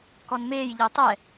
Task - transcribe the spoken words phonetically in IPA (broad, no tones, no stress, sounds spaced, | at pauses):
k ɔ n m eː j ʎ ɤ tˤ ɛ